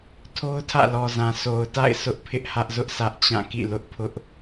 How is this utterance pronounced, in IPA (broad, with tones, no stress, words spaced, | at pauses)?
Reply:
tʰo˦ʊ̯tʰä̰˦˨lɔ˨zã˨ so˨ʊ̯ta̰˦˨ɪ̯ sʰʊ˦ʔpʰɪ˦ʔhä˦ʔzʊ˦ʔ sʰä˦ʔt͡ɕã˦˨kḭ˦˨lʊ˦ʔ pʰʊ˦ʔ